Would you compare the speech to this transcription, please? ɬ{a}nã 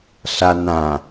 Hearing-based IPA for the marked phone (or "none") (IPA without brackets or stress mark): a